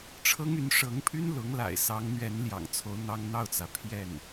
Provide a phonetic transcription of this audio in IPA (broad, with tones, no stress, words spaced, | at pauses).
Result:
ʈ͡ʂʰɤ˥ŋy˧˥n ʂɤ˧˥ŋpʰy˥nlʊ˧˥ŋla̰˨˩ɪ̯ sɑ˧˥ŋn̪ɥɛ˧˥n ljɑ̰˨˩ŋt͡sʰo˧˥ʊ̯ n̪ɑ˥ŋn̪ɑ˥˩ʊ̯t͡sä˩ pʰjɛ˥˩n